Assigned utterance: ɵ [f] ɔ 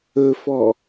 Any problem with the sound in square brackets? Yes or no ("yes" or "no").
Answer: no